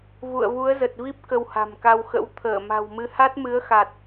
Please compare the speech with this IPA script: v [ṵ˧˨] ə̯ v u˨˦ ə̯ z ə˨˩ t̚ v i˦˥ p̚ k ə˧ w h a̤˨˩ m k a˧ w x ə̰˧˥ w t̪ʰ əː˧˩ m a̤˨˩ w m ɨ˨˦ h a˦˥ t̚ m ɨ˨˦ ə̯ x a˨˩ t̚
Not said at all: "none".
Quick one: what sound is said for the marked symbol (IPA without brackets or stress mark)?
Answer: ṵ˧˨